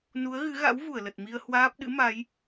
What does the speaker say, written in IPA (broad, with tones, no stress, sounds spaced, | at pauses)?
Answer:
n u˨˦ ə̯ ɣ ɨ˨˦ ɣ a̰˧˥ w v u˧˩ ə̯ l ə˨˩ t̚ m i˧ ə̯ h w aː˦˥ p̚ ɗ ɨ̰˧˥ m a˨˦ j